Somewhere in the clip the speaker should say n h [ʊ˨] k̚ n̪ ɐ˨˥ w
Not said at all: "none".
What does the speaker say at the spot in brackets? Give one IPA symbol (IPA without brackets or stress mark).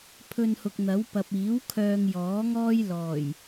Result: ʊ˨